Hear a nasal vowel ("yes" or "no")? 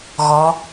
no